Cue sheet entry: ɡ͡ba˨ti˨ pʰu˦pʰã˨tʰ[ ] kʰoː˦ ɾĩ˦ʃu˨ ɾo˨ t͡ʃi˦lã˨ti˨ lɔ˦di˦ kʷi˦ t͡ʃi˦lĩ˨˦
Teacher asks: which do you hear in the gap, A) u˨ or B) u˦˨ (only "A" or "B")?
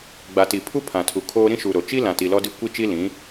A